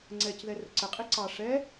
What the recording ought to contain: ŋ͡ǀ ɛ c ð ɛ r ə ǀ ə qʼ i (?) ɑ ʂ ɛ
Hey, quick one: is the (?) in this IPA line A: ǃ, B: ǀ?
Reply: B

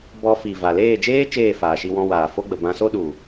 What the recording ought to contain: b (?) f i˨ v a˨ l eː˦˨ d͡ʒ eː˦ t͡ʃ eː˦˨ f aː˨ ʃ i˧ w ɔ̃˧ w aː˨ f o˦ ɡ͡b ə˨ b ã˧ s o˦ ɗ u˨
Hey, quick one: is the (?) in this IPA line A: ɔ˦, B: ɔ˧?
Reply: B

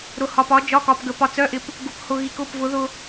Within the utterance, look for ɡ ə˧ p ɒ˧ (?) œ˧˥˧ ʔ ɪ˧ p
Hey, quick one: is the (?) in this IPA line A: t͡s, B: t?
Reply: A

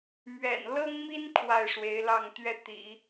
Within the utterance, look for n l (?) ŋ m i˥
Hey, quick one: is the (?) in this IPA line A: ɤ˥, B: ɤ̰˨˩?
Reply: A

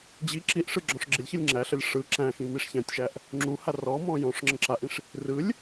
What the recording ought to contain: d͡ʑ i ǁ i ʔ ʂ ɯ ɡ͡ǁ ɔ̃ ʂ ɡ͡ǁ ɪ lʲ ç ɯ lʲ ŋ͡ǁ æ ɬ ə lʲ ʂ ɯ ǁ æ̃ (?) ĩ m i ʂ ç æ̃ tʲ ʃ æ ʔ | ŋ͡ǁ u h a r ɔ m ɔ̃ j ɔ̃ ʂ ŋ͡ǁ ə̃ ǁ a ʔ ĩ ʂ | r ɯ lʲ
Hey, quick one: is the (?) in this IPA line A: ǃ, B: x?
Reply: B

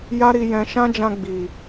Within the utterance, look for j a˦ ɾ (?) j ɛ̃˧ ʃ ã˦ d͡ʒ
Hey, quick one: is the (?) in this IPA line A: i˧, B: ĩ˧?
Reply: A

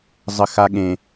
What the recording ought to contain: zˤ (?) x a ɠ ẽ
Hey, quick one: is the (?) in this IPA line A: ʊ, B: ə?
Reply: B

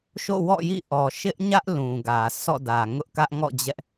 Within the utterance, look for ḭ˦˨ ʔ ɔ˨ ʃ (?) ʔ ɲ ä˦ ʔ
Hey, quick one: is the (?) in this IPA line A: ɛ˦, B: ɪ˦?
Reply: B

